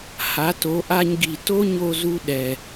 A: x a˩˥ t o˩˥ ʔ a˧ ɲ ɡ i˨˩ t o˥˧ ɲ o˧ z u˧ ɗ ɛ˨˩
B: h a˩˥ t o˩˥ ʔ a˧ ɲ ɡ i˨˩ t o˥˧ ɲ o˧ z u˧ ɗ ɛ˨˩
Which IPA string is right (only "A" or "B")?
B